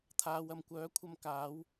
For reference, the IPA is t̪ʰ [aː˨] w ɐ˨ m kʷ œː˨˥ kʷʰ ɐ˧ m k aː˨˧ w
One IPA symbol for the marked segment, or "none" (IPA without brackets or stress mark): aː˨